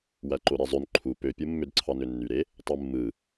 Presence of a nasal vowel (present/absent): absent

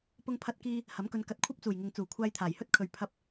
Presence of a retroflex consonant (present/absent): absent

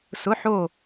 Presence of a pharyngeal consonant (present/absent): present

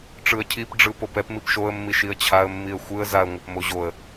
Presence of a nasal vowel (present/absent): absent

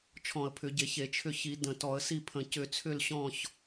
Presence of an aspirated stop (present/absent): present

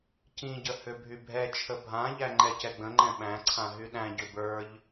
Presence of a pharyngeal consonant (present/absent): absent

